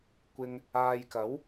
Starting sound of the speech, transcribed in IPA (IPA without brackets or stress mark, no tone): kʷ